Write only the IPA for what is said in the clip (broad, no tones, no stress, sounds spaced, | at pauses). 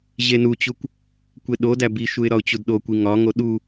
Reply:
ʑ e n u t͡ɕ u kʷ | kʷ e ɗ o d æ b i ʃ u ɪ̯ ɾ ɒ ʊ̯ t͡ɕ u d ɗ o kʷ i ŋ ɒ ŋ o ɗ u